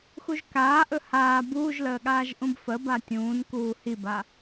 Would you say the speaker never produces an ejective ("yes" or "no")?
yes